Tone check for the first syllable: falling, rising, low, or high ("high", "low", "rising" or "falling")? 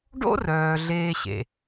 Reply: high